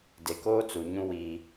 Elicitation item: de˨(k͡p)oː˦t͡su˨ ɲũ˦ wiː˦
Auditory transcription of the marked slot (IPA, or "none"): k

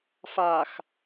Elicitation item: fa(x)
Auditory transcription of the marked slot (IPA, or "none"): x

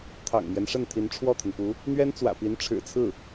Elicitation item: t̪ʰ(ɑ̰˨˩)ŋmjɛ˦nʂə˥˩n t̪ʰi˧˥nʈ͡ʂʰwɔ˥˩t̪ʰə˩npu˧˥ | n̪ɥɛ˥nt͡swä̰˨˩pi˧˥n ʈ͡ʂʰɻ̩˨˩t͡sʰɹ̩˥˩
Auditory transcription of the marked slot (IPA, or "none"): ɑ̰˨˩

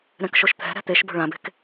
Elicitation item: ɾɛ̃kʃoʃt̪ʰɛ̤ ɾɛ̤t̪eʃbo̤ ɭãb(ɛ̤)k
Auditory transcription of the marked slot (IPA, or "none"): e̤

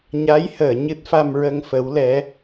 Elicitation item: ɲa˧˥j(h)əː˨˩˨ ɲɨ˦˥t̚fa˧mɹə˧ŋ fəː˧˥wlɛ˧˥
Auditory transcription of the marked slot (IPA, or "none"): h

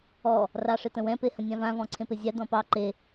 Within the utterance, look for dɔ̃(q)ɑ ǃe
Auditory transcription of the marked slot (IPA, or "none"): p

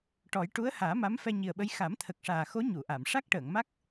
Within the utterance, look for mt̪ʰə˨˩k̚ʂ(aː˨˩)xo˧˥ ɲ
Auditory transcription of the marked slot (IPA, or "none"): aː˨˩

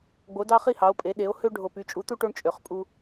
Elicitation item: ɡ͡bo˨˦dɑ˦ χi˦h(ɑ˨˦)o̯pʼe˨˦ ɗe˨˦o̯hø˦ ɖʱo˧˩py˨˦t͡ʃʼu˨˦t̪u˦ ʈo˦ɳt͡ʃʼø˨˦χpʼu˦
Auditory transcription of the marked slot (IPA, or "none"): ɑ˨˦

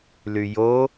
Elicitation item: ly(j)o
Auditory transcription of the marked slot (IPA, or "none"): j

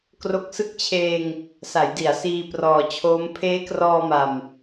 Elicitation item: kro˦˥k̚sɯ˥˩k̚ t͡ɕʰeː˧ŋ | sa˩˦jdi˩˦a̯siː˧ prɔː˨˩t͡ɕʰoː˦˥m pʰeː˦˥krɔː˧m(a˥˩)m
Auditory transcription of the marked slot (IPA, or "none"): a˨˩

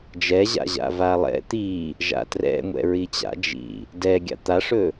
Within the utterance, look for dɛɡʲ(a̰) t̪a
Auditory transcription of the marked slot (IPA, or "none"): a̰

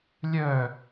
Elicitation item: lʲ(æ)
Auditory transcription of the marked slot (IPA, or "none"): œ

